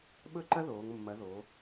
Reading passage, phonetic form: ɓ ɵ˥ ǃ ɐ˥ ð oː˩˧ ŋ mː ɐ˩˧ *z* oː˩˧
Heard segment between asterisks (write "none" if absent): ð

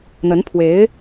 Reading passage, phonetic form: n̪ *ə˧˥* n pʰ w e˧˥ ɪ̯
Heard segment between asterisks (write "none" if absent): ə˧˥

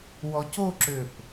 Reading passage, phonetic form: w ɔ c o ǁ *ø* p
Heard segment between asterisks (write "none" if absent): ø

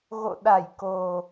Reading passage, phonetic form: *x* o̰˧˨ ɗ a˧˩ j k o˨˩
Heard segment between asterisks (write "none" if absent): ɣ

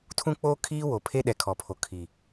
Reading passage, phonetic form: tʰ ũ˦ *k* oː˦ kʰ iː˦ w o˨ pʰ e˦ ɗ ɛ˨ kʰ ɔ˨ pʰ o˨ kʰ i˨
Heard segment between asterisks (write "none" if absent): k͡p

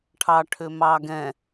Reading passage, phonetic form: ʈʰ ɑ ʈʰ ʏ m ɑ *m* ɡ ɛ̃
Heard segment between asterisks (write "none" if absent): none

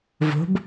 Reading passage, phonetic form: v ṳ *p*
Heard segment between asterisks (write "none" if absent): b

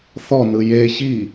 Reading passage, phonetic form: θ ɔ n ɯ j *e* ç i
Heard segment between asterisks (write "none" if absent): e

